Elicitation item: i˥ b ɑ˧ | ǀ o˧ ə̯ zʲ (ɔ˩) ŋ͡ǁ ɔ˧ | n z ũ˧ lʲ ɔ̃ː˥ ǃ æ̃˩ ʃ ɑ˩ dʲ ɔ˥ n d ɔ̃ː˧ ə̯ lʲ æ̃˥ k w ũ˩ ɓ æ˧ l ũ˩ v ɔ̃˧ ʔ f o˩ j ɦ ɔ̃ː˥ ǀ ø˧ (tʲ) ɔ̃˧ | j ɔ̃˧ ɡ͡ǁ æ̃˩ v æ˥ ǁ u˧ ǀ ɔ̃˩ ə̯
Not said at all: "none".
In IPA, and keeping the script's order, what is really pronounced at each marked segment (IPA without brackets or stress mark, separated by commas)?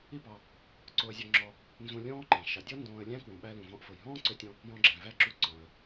ɔ˧, tʲ